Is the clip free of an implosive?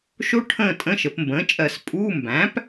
yes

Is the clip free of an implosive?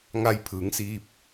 yes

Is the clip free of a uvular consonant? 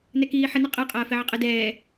no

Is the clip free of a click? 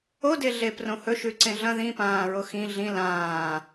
no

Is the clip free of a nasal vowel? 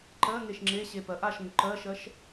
yes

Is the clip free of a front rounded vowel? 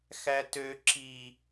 no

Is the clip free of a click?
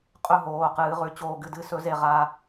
yes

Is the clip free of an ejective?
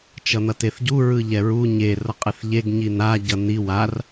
no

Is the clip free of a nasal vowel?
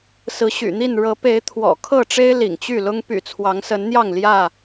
yes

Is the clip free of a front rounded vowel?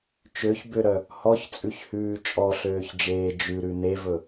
no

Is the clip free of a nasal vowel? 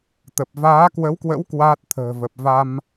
yes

